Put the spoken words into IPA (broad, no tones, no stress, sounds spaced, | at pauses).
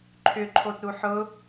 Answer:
ǃʰ ʏ ǃʰ o t ɾ u ħ ʊ